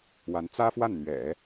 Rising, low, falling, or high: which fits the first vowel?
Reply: rising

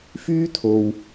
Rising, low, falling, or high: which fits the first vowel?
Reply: high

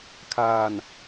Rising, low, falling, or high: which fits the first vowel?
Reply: low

